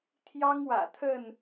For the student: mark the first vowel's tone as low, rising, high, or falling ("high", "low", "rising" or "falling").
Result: high